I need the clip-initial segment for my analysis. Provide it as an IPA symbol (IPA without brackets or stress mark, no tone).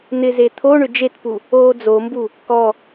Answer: n̪